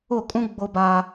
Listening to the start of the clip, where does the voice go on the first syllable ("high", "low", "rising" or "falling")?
falling